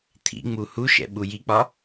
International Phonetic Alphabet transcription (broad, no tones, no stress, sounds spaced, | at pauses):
t̪ʰ ḭ ŋ͡m u h u ʃ ɛ̰ ɓ u j i k͡p ɒ